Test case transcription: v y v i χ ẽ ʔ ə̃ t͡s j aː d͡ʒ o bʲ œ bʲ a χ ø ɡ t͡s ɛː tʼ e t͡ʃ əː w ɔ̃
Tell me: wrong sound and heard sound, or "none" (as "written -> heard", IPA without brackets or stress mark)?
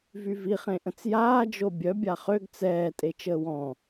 none